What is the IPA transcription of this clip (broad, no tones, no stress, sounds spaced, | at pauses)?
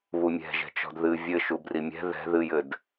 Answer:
β u mʲ ɛ̤ ʒ ɛ̤ t͡ʃ ɔ̤ d ð ɨ vʲ ɘ ʃ u b r i mʲ ɛ̤ ð ɛ̤ ð ɨ j ɘ d